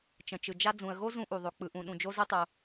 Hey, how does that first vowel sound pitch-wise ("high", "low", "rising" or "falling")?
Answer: low